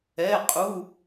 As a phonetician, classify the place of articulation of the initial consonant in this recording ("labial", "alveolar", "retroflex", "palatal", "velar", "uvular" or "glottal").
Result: uvular